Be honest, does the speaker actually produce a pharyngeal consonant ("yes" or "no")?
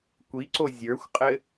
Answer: no